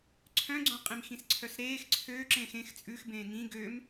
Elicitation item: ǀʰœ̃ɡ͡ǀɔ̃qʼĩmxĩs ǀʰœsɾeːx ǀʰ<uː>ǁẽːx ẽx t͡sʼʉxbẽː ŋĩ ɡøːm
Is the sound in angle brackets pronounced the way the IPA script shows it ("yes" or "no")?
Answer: no